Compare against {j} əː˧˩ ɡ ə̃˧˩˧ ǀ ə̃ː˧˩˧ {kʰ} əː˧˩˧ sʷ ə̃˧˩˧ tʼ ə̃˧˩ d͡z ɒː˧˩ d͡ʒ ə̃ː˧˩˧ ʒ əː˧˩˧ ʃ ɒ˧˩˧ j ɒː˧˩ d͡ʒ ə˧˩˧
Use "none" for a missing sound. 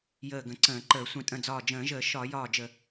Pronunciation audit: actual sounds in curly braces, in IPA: j, ǃ

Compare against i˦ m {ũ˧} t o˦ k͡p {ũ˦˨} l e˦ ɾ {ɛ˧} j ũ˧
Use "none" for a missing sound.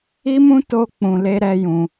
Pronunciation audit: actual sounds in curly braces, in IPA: ũ˦, ũ˧, ɛ˦

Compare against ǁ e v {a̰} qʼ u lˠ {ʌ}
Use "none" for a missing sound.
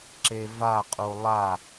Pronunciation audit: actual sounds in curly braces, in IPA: a, a

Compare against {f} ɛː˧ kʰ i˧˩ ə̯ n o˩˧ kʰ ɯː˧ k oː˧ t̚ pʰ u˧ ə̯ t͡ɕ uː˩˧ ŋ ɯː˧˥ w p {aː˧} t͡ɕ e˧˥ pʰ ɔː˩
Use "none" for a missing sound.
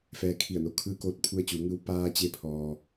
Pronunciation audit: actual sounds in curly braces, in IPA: f, aː˧

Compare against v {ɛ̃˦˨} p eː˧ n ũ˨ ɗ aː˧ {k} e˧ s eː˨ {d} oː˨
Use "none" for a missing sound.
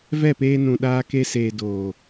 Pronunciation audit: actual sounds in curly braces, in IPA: ɛ˦˨, k, d

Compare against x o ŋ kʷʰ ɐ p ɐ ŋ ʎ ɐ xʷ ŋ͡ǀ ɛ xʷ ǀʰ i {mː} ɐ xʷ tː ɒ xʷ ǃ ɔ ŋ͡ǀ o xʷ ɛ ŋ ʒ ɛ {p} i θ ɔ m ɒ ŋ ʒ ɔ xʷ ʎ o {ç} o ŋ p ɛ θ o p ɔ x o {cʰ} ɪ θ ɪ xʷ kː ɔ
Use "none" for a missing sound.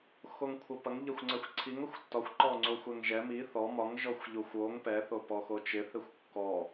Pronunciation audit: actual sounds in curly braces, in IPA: ŋ, m, xʷ, t͡ʃ

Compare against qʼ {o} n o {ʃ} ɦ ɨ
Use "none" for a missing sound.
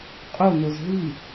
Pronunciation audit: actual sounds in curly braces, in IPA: o, z

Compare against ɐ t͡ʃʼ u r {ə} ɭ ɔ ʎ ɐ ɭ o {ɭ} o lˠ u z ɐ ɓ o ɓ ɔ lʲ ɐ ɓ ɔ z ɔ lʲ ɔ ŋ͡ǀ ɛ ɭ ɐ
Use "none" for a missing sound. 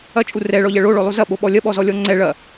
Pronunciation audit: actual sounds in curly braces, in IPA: ɛ, ɭ

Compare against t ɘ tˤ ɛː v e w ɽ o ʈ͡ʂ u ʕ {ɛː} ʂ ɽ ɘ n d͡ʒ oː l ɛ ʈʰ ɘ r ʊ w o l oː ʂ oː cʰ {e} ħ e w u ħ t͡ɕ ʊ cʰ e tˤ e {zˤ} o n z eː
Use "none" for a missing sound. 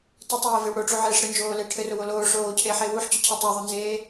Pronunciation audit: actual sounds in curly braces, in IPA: eː, eː, ðˤ

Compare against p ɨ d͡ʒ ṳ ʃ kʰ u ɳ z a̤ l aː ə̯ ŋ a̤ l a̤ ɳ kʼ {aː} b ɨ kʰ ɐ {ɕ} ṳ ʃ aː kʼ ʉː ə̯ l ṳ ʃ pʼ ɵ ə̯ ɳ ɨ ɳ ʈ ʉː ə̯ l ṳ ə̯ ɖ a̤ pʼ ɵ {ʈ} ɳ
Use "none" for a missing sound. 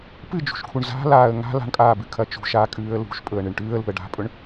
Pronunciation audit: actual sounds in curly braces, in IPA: aː, t͡ʃ, none

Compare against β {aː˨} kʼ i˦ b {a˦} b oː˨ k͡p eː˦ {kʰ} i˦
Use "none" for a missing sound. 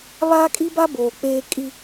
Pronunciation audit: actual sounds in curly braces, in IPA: aː˦, a˦, kʼ

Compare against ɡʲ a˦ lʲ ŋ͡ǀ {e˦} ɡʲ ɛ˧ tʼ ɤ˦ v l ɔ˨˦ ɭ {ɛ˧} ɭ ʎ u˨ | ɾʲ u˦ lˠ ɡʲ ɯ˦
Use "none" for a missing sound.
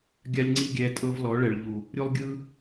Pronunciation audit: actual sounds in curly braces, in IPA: i˦, ɛ˨

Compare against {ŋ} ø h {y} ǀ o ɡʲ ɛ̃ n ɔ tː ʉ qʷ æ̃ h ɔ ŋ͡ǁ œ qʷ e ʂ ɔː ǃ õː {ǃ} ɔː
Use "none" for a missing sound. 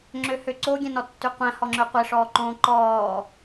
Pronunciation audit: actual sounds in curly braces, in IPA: ŋ͡ǁ, ø, ǃ

